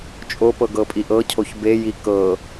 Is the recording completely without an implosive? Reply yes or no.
yes